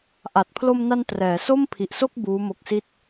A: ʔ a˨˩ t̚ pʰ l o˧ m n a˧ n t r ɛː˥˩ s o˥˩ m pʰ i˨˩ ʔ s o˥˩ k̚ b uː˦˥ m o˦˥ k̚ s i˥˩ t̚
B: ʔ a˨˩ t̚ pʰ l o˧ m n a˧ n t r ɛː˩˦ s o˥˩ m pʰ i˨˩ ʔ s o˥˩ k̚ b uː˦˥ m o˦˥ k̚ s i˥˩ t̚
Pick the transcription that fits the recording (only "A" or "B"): B